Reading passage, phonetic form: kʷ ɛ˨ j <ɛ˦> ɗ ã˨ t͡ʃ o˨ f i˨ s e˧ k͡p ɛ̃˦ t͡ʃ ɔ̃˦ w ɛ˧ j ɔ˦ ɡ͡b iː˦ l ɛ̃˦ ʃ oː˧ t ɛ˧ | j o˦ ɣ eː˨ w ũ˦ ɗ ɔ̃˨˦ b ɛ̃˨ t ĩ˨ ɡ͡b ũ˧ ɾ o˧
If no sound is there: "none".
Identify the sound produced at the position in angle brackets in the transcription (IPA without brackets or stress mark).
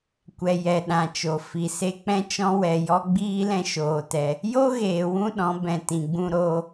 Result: ɛ˨